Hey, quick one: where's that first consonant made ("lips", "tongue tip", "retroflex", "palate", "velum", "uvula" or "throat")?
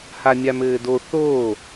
throat